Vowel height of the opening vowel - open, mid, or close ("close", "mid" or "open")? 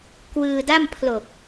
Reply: close